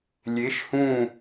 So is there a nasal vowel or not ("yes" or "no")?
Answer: yes